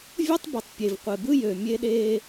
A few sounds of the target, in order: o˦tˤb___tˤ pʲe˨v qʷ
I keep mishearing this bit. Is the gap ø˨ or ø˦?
ø˨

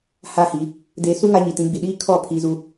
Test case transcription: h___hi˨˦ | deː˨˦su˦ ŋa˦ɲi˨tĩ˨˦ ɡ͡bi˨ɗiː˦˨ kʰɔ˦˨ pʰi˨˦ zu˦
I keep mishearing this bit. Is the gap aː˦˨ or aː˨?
aː˦˨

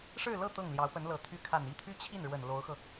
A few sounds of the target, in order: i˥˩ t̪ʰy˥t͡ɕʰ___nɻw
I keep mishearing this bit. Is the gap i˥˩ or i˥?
i˥˩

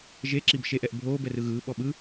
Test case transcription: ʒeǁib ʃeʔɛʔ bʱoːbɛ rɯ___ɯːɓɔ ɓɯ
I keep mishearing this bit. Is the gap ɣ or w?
ɣ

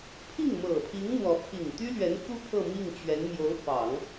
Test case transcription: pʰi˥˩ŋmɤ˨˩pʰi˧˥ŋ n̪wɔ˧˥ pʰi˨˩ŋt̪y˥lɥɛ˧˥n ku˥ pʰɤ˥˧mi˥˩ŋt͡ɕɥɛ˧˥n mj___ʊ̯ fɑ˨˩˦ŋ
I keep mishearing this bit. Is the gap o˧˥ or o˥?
o˧˥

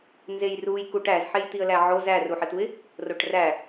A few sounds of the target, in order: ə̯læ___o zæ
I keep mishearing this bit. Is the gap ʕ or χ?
ʕ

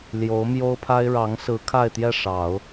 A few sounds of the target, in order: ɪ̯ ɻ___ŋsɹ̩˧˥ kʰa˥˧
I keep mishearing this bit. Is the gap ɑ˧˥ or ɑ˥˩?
ɑ˧˥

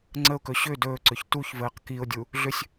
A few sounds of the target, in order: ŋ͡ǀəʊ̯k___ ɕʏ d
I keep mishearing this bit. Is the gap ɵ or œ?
ɵ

